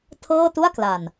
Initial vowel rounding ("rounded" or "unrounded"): unrounded